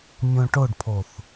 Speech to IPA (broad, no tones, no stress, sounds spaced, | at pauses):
mʲ õ ʈ o ɖ pʰ o θ